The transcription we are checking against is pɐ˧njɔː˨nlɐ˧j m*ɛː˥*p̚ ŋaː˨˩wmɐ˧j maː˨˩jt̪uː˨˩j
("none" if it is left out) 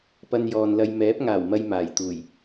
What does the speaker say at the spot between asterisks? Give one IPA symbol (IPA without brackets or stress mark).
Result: ɛː˨˥